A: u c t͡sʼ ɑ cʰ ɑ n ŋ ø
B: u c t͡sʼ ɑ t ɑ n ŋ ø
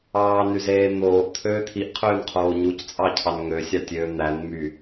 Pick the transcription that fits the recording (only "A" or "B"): A